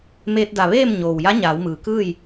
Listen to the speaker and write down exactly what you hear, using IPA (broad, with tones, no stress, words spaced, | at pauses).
meː˧t̚da˧˩ ʋeː˥˨m ɲoː˩wja˧˥ɲaː˩˧w mɯː˩kɯː˥˨j